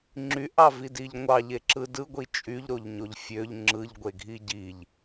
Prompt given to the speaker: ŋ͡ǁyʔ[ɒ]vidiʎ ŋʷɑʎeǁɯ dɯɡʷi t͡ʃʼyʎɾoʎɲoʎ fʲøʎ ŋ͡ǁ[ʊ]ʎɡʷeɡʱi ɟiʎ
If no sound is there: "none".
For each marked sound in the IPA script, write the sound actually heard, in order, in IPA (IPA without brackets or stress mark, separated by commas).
ɑ, ɯ